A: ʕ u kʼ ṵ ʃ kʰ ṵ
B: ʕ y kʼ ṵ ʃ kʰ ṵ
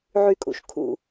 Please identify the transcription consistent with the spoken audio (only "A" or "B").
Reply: B